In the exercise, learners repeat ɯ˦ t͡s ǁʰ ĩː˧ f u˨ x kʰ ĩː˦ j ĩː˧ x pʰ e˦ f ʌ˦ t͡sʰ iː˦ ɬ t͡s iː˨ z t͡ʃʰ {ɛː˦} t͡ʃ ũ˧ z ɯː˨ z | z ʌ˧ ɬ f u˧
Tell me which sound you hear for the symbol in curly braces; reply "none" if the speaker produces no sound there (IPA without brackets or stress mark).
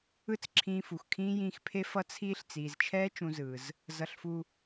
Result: ɛː˦